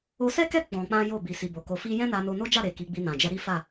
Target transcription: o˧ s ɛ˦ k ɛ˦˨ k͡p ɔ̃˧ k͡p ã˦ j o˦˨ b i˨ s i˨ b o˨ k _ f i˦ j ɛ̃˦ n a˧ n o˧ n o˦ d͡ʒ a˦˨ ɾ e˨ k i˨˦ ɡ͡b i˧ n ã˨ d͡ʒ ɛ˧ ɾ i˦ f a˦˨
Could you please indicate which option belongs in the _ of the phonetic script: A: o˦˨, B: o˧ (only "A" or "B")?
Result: B